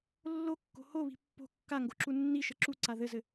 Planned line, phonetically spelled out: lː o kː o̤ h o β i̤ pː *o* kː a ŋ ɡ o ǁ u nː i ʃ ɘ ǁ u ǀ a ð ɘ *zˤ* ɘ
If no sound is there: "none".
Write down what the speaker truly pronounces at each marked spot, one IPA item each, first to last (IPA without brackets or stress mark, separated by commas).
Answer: o̤, z